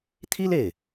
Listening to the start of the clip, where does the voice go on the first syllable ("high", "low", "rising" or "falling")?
high